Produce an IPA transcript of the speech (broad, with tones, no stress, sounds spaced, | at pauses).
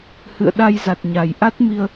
h ɨ̰˧˨ ə̯ ɗ a˧ j z a˨˩ t̚ ɲ a˨˩ j ʔ a˦˥ t̚ m i˧ ə̯